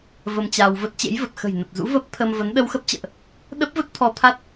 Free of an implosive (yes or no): no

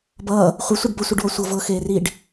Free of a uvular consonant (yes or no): no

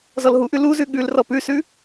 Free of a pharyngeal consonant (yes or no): yes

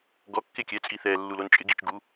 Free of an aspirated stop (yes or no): yes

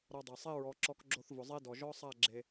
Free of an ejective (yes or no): yes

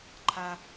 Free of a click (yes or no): no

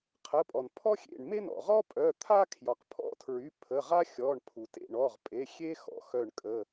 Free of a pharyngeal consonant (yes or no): yes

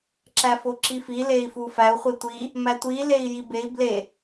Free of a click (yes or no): no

